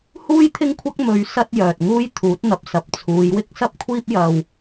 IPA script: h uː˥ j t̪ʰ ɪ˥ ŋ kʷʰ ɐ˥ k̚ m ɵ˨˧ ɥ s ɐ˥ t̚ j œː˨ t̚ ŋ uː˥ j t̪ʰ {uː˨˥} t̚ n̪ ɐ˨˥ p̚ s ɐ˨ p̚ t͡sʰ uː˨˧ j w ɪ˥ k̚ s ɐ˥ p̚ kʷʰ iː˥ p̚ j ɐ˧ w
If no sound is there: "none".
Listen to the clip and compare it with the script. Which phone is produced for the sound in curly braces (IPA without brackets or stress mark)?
uː˨˥